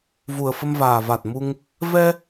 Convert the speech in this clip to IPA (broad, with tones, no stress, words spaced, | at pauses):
vu˨˩ə̯fə˧mvaː˨˩va˨˩t̚ mu˧ŋ | vɛ˧